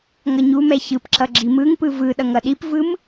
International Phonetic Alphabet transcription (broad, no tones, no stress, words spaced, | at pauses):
ŋʌɲumɛ çɯpǁʌ ɡ͡ǁimɯŋpɯ vɯ ɗʌŋʌɗipvɯm